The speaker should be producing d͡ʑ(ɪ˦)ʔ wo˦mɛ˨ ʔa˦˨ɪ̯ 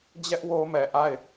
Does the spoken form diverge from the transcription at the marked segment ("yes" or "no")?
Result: yes